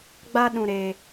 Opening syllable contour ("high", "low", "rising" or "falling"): high